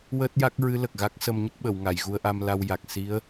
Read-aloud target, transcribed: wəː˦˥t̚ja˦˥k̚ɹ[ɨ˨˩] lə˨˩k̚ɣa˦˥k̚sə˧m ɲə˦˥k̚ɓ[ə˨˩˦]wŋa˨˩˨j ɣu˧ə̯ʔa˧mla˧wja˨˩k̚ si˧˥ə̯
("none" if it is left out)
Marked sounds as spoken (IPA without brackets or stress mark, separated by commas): ɨ˧˥, ə˨˩˨